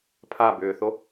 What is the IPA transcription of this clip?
pʰabʏːθo

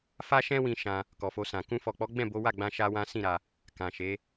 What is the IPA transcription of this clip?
fa˦ʃɛ̃˦wĩ˧ ʃã˧ | kɔ˨fo˧sã˨ kũ˧fɔ˨k͡pɔ˨˦ ɡ͡bɛ̃˦˨bo˨˦wa˦˨ɡ͡bã˧ ʃa˦wã˦ sĩ˦˨ɾa˧ | kã˨ ʃe˨˦

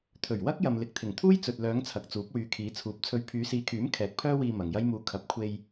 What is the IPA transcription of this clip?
t̪ʰɵ˨˩ɥwɐ˥k̚jɐ˨m lɪ˨k̚t̪ʰɪ˨˩ŋt̪ʰuː˥j t͡sɵ˨t̚lœː˨˧ŋ t͡sʰɐ˨k̚t͡suː˨˥p̚ wyː˨˧kʰiː˨˧t͡sʰuː˨˥p̚ t͡sʰɵ˨˧ɥpʰyː˨˧siː˨˧kʰyː˨˥m kʰɛː˨˥k̚pʰœː˥wiː˧ mɐ˨ŋjɐ˥jmuː˧ kʰɐ˨˥p̚kʷʰe˧j

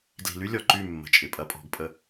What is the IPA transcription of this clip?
dli̤˨ly˦lʲɔ˨ ǃy˦˨ mːə̤˨t͡ʃʼɪ˨ pʼɐ˨pʼɔ̤˨ɡpʼə˨

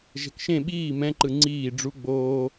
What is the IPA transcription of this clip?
ʒɛ̤kʃẽ ɓiː mɛ̃ǃɯ ŋ͡ǀiː ɖ͡ʐu ɡ͡boː

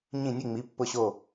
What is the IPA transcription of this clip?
ɲĩ˧˩˧nʲ ɪ˩˧˩ŋ͡mi˩˧˩ pːʊ˧˩ɕo˧˩

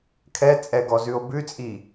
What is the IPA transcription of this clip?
kʰɛt͡sʼɛɡɔzʉo̯ bʉt͡sʼi

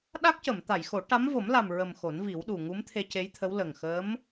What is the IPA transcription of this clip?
ɗa˦˥k̚cə˨˩˨mt̪a˨˩˨jxo˨˩˦ ʈa˧˥mvo˨˩˦mla˨˩mɹə˨˩m xo˨˩˦nvi˨˩˦wɗu˨˩ ŋu˧˥mt̪ʰe˧ce˧˥jt̪ʰə˧˥w lə˨˩ŋxəː˧˥m

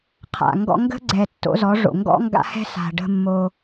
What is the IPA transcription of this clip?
qʰa̰˨ŋɡɔ̰˦ ŋɡə̤˦ɡ͡ǀɛ˨ tːo̰˦zɔ˨˦ʐo̰˨ ŋɡɔ̰˦ŋɡa̰˦hɛ̤˦sa̤˨ ɖə̤˦mːo˦

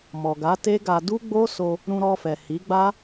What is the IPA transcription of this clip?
mɔ˨ɡa˨˦ te˦ɡa˧ du˦ɡ͡bo˦so˧ | ɾũ˧ɾɔ˧fɛ˨ hi˨˦ɡ͡ba˦

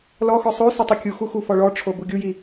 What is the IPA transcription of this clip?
lɔxɔ sˤoso tˤikʲuxu xufɔɭɔʈ͡ʂʰo buɡʲuji

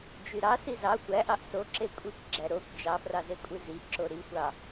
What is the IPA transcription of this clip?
d͡ʒyɾɑ sizɑ xʷæʔɑʔ soǁe kʷʼikʷɡ͡ǁæ ɾokʷ d͡ʒɑfrɑzekʷʼi ziǁo ɾixʷɑ

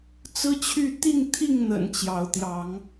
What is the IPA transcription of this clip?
t͡sɹ̩˦t͡ɕʰy˥˨ t̪i˥˨ŋt̪ʰi˥˨ŋn̪ə̰˨˩n t͡ɕjɑ˨˦ʊ̯t̪jɑ˨˦ŋ

